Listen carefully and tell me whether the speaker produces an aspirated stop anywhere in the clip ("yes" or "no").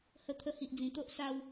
yes